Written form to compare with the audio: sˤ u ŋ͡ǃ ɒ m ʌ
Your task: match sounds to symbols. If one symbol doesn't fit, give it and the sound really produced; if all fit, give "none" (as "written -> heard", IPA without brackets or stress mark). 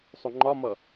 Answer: none